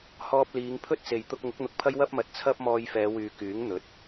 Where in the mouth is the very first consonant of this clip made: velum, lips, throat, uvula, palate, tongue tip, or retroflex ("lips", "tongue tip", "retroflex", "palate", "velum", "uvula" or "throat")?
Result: throat